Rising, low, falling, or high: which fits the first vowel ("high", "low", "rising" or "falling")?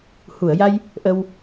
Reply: low